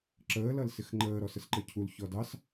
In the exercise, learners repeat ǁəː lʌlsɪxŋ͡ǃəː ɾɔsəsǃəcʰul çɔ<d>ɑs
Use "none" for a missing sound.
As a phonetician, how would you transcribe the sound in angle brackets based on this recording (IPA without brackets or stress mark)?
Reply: d